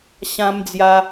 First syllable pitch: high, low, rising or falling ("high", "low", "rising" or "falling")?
high